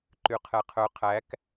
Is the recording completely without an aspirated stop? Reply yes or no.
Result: no